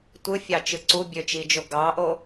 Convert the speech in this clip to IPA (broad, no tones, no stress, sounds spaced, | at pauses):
tʷ ɯ fʲ ɑ t͡ʃ ɯ ǀ u bʲ ø t͡ʃ i d͡ʒ o ɡ ɑ ʔ o